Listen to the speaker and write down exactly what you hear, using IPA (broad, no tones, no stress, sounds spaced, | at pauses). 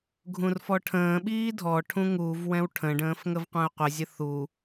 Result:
ɡʱ ũ r f ɔ ʈʰ ə̃ː ɓ iː dʱ ɔ ʈʰ ũ ŋ u v w ɛ̃ w ʈʰ ə̃ ɖ ə̃ː f ŋ ə v qʷ ɛ̃ ʊ̯ qʷ ɪ zʲ ə θ u